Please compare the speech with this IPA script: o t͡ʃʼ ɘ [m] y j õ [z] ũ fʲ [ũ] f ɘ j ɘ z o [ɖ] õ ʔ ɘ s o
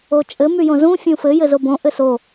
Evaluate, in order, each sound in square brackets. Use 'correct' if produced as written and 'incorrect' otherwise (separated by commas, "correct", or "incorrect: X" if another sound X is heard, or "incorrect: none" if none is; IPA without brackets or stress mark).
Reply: correct, correct, correct, incorrect: b